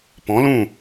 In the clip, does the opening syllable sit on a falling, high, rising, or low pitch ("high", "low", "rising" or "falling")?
rising